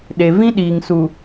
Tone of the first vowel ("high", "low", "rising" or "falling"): low